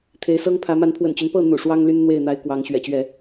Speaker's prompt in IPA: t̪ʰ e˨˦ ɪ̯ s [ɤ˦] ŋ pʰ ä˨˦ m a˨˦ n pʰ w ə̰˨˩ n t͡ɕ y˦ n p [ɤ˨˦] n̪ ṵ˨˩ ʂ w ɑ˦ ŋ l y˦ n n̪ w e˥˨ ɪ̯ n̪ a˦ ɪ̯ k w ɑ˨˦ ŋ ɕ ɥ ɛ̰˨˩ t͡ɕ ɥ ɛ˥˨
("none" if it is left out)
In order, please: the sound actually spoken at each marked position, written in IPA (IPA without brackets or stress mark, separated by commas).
ɤ˦, ɤ˥˨